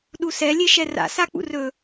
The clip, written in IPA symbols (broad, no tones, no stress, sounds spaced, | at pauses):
ɗ u s ɛ lʲ e ʃ ɛ r a̰ s a k͡p ṵ r ɵ